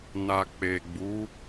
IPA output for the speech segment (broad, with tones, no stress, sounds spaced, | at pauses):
n a˨ k͡p e˨ ɡ͡b u˨˦